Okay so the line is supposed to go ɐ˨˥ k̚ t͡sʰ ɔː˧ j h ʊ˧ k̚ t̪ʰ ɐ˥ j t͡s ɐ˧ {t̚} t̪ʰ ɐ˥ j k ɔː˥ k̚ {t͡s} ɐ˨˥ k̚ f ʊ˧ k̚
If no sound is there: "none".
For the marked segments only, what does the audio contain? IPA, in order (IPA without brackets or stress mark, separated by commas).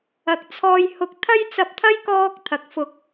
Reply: p̚, t̪ʰ